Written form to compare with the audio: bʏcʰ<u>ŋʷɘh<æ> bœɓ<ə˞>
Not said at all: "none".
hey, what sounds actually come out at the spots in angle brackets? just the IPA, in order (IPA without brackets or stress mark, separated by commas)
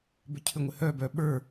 ʏ, œ, ə˞